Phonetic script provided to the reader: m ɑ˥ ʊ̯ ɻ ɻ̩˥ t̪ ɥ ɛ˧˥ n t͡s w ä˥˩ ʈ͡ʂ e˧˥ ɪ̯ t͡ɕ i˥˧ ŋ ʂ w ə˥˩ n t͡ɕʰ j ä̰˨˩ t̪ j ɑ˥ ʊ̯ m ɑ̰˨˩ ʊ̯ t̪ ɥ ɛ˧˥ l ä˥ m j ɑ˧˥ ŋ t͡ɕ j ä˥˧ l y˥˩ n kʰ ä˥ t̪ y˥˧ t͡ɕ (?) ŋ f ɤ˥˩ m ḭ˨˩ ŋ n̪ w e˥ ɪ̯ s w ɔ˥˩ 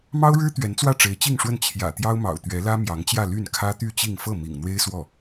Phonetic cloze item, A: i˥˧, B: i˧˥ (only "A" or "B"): A